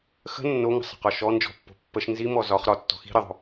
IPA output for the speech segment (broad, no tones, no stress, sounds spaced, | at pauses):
x ə̤ nː o ŋ ə̤ sˤ ə̤ q ɒ ʃ ɔ n d͡ʒ ɔ̤ pː o̤ pː ə ʃ n z i m ɔ z ɒ χ ɾ ɒ tː ɔ̤ x i̤ ɾ ə ðˤ o̤